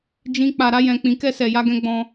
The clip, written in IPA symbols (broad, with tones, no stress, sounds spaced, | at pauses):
d͡ʒ ĩ˦ k͡p a˧ ɾ a˦ j ɛ̃˧ k͡p ĩ˧ k ɛ˦ s ɛ˧ j a˦ ɡ ɛ̃˦ ɡ͡b ɔ̃˧